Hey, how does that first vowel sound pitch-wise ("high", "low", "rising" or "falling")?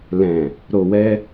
low